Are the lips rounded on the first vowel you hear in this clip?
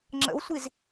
no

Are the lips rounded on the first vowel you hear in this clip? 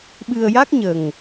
no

